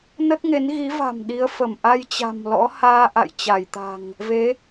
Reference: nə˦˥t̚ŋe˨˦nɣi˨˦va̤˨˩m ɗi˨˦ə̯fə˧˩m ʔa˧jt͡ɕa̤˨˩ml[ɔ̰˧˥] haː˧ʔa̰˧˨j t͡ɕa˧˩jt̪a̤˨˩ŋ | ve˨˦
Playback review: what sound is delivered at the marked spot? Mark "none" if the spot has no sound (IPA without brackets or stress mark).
ɔ̰˧˥